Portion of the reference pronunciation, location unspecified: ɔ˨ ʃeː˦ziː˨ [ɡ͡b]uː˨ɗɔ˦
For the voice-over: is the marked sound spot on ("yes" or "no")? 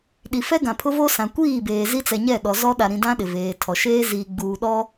yes